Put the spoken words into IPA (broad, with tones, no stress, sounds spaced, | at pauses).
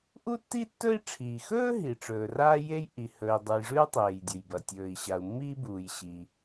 ʔ u˥ tː i˥ tː ɵ˥ i̯ ʈ͡ʂʰ iː˩ x ɵː˥ ɦ i˩ ʈ͡ʂ ɵː˩ r aː˥ j e˥ j ʔ i˩ h ɵ˩ i̯ dˤ ɨ˩ j ʐ ʉ˥ u̯ tˤ eː˩ j dʲ ɵ˩ j b ɐ˩ tʲ ɵː˩ i̯ ɕ a˩ u̯ mː iː˥ b uː˩ j ɕ i˩